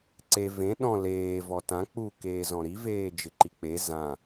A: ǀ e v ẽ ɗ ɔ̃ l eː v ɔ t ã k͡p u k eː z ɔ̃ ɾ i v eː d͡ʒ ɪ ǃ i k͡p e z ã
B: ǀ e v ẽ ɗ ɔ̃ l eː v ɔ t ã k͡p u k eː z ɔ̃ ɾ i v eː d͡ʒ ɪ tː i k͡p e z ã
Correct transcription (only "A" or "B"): A